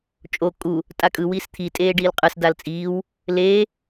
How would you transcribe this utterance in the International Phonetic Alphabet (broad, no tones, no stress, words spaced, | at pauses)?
t͡ʃʼo kʼu | tʼakʼɯ wiːst̪ʰi tʼeːɖiːlqʼɯs dalt͡sʼiːw | leː